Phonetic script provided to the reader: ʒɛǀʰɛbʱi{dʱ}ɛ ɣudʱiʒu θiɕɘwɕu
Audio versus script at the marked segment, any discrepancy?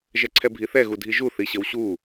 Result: yes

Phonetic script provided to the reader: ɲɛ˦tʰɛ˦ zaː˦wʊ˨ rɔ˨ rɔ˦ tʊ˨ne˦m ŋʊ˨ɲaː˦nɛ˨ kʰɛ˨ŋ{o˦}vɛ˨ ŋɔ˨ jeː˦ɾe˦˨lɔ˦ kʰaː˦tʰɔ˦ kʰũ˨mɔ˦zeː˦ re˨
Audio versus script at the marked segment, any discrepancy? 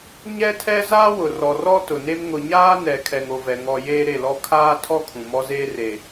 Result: yes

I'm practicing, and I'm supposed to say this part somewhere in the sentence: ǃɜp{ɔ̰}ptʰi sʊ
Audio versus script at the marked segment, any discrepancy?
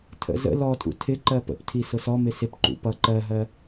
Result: yes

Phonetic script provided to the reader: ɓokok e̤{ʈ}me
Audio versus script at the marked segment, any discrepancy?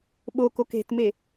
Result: yes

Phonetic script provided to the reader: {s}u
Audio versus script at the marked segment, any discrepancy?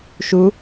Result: yes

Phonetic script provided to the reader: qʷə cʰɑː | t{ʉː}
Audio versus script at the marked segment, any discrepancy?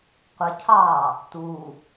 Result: yes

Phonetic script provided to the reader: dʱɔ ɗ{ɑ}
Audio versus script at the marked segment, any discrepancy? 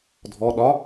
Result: yes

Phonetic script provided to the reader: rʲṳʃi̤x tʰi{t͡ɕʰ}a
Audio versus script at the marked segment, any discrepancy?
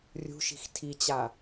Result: yes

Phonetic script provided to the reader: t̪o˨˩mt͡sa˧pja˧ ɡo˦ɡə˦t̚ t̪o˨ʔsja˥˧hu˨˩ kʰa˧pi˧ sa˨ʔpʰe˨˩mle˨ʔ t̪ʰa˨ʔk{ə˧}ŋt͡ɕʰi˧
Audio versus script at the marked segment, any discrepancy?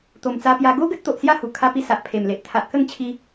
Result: yes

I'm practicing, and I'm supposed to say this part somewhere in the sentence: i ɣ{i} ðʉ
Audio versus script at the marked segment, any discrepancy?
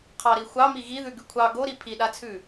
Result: no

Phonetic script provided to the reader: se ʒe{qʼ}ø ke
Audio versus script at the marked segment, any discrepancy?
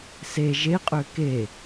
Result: no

